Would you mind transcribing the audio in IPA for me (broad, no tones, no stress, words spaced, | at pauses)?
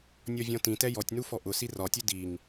nʲɔvʲɔ̃tĩ tɛjɔtʲnu fɔʔʊ sirɒtʲu diŋ